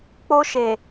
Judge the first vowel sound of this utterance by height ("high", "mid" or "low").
mid